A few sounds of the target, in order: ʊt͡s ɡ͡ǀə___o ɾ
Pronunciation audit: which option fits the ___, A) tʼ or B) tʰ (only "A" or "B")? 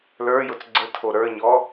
B